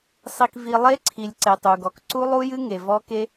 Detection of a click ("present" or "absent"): present